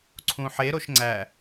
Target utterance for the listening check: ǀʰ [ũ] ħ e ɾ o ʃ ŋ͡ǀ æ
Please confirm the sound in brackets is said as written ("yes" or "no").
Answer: yes